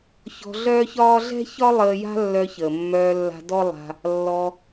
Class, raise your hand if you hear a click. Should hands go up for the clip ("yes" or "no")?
no